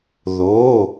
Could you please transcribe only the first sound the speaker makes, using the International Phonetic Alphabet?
ð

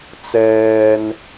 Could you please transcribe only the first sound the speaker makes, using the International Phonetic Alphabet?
t͡s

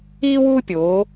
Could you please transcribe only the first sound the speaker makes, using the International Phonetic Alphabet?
iː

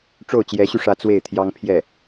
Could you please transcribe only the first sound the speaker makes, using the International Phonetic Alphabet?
ʈ͡ʂ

